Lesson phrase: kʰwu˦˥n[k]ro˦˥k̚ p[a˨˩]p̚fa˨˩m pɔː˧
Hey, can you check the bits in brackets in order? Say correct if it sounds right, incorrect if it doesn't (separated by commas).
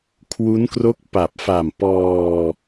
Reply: correct, correct